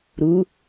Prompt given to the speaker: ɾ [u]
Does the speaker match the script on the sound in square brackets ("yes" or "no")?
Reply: yes